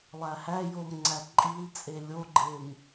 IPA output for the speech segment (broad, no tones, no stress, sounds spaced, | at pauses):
lˠ æ h æ j o m ŋ͡ǀ æ ǃʼ i l t͡sʼ e lʲ o ɡ͡ǃ e m